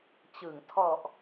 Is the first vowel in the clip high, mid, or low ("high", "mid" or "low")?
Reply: high